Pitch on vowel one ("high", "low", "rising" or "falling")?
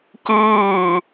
falling